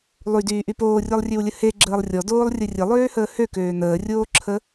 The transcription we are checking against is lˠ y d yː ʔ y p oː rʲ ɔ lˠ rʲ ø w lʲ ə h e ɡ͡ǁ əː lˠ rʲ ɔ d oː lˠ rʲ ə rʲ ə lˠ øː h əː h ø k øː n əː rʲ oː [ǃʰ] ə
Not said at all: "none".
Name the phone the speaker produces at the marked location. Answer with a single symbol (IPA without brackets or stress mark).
ǁʰ